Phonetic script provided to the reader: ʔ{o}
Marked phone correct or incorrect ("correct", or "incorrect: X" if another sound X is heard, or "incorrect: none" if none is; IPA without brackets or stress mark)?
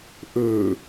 incorrect: ɵ